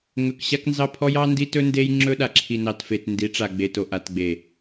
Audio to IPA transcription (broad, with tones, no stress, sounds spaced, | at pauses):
ŋ ɵ˨ k ɕ a˦ k n z ɑ˦ pʰ ɔ˦ j ɑ˦ n d i˦ t ɵ˦ n d e˦ j ŋ͡ǁ ɵ˦ ɗ a˨ ǁʰ i˨ n ɑ˨ t f e˨ t n d i˨˦ ʈ͡ʂ a˨ ɡ͡b e˨ t o˨ ʔ a˨ t ɡ͡b e˨